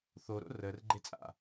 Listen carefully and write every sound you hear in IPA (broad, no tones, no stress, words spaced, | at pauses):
θoɾo̰ rər ɡ͡ǃet͡sʼa̰